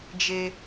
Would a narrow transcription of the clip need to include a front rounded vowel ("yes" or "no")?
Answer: no